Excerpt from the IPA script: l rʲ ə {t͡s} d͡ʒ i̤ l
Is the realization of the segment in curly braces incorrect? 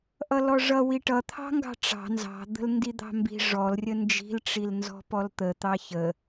yes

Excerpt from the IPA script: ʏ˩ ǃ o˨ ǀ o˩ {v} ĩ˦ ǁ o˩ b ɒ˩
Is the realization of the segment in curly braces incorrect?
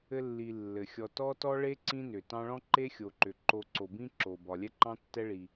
yes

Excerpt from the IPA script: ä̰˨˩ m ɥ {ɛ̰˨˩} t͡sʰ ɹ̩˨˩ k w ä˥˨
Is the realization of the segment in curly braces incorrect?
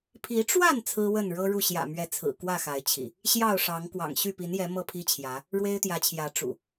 yes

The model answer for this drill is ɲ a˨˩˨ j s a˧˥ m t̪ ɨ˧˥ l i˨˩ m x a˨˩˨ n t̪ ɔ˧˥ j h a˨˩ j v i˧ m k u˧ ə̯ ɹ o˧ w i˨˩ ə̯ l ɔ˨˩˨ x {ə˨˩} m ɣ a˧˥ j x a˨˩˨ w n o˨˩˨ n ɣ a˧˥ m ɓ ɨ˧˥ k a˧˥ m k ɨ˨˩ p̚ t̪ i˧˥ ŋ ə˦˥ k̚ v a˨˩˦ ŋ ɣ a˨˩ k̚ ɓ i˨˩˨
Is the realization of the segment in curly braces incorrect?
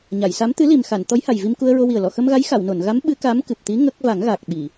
yes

